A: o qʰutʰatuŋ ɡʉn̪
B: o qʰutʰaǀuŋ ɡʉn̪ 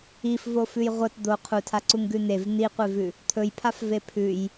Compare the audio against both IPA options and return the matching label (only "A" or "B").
B